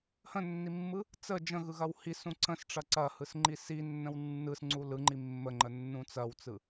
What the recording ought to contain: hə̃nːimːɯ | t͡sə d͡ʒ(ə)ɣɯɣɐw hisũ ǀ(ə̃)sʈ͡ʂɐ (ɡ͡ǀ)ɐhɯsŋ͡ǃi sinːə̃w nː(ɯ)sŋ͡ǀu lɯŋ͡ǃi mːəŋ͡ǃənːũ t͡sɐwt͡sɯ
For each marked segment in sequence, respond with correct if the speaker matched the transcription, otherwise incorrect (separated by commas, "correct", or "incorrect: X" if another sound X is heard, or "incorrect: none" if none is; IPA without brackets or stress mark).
incorrect: ə̃, correct, incorrect: ǀ, correct